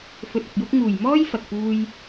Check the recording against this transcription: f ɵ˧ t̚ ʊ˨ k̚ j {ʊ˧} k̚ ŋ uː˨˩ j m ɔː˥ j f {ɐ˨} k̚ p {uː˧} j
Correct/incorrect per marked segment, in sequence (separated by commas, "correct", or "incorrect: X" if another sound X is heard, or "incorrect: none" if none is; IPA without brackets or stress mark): incorrect: ʊ˥, correct, correct